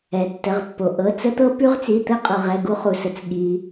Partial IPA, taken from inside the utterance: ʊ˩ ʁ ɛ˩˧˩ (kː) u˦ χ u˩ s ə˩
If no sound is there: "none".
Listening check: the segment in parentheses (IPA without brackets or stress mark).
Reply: ɡ